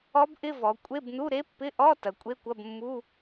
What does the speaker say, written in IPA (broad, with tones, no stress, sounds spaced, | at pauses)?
ɔ˦˥ b ʔ ɪ˧˥˧ v ɔ˩˧ kʷʼ e˧˥˧ b n u˧˥˧ ɾ e˦˥ pː ɪ˧˥˧ ʔ ɔ˧˥˧ t ɐ˩˧ kʷʼ e˧˥˧ kʷ ɐ˧˥˧ b mː u˧˥˧